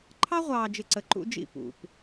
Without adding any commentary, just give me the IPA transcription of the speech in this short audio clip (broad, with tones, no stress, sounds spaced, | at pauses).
ǃʰ ɑ˦ ʁʷ ɑː˨ d͡ʒ ɪ˨ ǀ ə˨ ǃ ṵ˦ d͡ʒ ḭ˦˨ p ṵ˨ p